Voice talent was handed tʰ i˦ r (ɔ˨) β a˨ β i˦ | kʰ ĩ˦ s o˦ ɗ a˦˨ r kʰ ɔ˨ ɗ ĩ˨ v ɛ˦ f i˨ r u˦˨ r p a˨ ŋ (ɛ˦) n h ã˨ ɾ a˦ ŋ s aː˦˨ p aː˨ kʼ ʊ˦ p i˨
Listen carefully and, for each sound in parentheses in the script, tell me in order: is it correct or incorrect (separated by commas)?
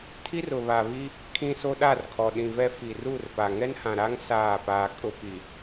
incorrect, correct